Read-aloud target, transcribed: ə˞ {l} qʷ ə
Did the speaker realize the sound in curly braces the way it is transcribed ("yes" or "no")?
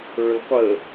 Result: yes